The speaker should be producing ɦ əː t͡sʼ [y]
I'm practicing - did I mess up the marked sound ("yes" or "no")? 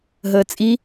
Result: yes